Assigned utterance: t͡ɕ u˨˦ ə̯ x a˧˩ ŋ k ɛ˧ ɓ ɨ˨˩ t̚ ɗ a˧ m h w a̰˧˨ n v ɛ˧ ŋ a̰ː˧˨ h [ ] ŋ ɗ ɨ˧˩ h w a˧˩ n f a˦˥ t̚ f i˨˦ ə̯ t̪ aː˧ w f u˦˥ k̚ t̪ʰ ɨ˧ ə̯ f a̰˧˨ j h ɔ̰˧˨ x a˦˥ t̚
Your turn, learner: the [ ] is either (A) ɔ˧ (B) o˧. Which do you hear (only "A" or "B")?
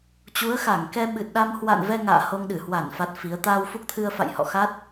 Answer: B